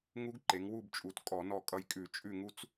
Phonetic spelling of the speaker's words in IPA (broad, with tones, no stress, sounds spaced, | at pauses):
ŋ u˦˥ ɡ ǃ e˩˧ ŋ w u˦˨ b t͡ʃʼ u˩˧ t kʼ ɔ˧˩˧ n ɔ˦˨ kʼ ʌ˦˨ j kʼ ʉ˧˩˧ t͡ʃʼ ʉ˦˨ ŋ u˦˥ t͡s